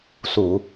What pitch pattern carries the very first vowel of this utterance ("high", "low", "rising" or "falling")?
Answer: low